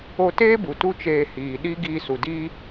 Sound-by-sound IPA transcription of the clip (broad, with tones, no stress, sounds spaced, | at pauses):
o˧ t eː˦ b u˨ t u˦ t͡ʃ eː˧ h iː˨ ɗ i˦ ɡ iː˧ s u˨ d iː˧